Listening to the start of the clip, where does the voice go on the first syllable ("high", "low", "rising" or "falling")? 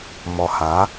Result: low